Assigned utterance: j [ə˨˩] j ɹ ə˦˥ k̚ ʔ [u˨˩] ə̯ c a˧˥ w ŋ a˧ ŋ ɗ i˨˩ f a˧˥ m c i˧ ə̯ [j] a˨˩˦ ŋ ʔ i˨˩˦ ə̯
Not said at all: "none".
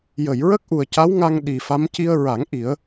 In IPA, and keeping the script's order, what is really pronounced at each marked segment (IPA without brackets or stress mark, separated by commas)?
ə˨˩˨, u˨˩, ɹ